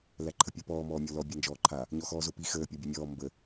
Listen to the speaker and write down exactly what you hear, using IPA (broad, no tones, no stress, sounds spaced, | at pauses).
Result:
l æ ǃʰ ə pʲ əː p ɔː m ɔː mʲ ɔ l ɔ bʲ a n d͡ʒ ɔː ǃʰ a | ɲ ɔ x ɔː z o p i x əː pʲ ɔ bʲ ɛ mʲ ɔː m b ə